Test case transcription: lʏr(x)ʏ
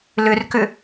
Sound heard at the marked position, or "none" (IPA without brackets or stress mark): k